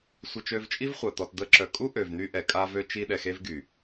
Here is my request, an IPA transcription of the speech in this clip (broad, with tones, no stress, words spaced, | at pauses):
sʷə˧ t͡ʃø˧vt͡ʃʼi˦vχʷa˨ t̪ɔ˨td̪ə˧ǁœ˨ kʼu˦ʔø˨vn̪y˧ ʔɛ˨kʼa˧vø˧ t͡ʃi˧ɗɛ˨xe˧vɡy˨